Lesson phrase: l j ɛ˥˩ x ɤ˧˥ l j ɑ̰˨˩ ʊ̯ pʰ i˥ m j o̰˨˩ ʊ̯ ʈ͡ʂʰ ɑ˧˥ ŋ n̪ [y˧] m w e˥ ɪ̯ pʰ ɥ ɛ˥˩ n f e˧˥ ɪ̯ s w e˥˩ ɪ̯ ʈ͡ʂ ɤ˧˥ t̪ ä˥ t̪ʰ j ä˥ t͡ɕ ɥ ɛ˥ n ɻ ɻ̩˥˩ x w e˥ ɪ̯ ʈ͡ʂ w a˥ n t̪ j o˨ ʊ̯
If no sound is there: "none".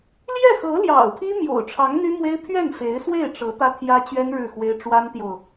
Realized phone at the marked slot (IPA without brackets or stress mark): y˥